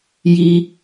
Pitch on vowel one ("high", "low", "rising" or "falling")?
low